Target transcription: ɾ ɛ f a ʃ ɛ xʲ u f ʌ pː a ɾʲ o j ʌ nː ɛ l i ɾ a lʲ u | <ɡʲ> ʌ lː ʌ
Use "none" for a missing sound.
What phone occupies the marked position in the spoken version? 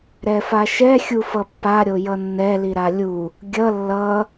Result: ɡʲ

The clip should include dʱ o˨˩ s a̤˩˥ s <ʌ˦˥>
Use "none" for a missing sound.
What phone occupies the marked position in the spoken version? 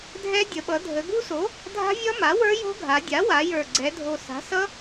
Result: ʌ˦˥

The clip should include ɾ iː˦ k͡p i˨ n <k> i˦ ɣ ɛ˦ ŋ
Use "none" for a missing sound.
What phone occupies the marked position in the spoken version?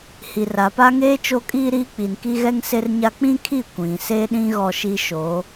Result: k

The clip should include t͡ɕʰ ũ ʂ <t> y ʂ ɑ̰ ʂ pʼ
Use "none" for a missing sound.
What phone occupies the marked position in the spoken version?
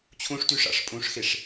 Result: t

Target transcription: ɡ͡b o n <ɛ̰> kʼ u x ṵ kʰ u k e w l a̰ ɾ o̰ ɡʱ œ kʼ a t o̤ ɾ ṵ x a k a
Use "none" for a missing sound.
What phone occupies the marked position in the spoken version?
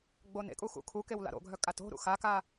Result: ḛ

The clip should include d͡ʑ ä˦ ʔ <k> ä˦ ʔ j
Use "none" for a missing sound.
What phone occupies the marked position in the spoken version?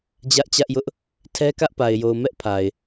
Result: t͡ɕ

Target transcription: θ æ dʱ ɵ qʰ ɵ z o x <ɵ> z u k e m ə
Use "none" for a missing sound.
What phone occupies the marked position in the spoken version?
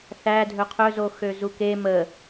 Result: ø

